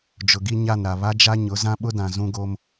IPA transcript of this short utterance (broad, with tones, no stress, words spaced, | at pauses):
d͡ʒʊ˨ɡi˦ɲa˦˨nɾa˨ βa˦d͡ʒa˦ɲʊ˨˦ zã˦ɓʊ˦dã˨ zũ˦ɡo˦m